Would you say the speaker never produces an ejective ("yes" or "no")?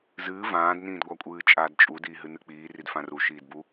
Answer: no